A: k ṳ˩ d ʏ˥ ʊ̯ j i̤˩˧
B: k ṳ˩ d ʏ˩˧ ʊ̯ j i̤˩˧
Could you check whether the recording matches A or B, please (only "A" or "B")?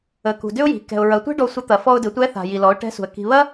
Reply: A